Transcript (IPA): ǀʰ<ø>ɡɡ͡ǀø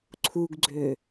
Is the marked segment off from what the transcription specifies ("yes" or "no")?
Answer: yes